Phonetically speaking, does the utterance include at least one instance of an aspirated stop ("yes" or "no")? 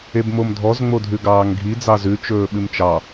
no